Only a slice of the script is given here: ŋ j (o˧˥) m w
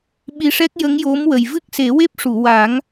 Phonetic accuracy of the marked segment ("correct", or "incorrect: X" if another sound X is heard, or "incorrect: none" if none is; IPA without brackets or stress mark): correct